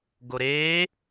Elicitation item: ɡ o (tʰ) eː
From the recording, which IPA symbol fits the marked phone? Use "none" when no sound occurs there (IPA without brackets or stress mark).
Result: ɾ